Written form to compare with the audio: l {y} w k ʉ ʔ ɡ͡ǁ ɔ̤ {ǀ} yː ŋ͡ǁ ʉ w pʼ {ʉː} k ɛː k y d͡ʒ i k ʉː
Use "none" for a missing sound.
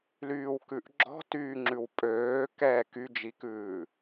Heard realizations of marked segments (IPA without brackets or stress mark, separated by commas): yː, t, øː